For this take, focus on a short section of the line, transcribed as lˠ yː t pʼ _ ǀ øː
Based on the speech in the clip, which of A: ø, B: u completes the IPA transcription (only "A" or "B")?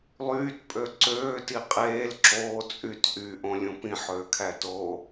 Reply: A